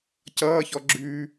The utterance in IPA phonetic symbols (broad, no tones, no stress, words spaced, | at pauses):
cʌːçɔ ɡ͡ǁʉ